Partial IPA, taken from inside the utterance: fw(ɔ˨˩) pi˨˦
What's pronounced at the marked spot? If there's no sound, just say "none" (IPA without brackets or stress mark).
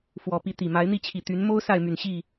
ɔ˨˩